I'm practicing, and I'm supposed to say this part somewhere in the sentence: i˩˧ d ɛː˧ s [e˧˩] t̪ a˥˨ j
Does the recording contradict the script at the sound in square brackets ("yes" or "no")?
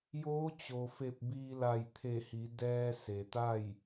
yes